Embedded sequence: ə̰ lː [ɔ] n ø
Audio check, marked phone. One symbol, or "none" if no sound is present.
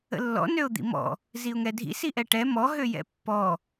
ɔ̰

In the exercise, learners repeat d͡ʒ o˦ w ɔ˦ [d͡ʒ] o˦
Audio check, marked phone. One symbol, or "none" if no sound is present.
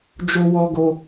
ɡ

